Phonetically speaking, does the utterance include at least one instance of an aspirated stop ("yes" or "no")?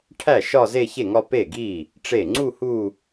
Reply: yes